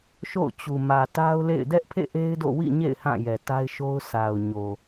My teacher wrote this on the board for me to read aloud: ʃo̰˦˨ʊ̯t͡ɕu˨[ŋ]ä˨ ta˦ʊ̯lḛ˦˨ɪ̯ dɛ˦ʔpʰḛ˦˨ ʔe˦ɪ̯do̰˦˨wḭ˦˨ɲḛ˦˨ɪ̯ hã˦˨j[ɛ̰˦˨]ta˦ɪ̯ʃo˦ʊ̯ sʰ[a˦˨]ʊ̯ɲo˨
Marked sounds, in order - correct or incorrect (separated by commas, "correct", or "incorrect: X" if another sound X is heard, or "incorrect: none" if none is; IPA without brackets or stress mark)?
incorrect: m, incorrect: ɛ˨, incorrect: a˨